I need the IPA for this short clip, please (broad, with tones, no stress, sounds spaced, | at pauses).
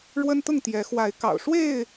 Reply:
ɻ w ə˦ n t̪ ʊ˥˨ ŋ t̪ j ɛ˨˦ x w a˨˦ ɪ̯ k ɑ̰˨˩ ʊ̯ ʂ w e˥˨ ɪ̯